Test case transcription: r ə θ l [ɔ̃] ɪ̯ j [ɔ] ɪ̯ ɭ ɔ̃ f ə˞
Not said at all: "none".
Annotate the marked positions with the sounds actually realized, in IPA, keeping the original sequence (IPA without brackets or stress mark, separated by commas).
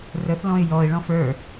ɔ̃, ɔ